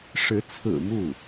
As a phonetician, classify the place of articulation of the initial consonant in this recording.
retroflex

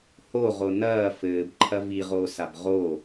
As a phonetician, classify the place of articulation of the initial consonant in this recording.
glottal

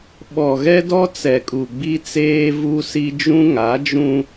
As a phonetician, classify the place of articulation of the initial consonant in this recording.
labial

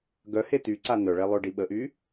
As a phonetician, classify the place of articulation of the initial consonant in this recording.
velar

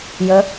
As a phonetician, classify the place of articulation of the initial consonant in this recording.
palatal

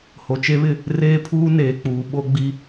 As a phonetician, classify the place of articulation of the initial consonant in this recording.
glottal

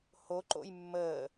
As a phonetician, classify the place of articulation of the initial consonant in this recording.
glottal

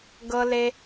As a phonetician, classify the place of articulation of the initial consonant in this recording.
velar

